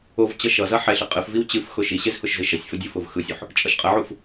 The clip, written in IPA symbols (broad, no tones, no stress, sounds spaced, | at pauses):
o v t͡ɕ ʌ ʃ ʌ z ʌ ħ ɛ ɬ ɨ qʼ ɨ f v i w t͡ɕ ɨ f x ʊ ʃ i ɕ e z h ʊ ʃ z ɨ ʃ ʌ sʲ f ʊ dʲ o f ʊ v x ɯ sʲ u ħ | t͡ʃʼ ʌ ʃ qʼ ə ʕ u f